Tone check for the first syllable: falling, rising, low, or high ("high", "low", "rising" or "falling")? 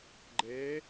rising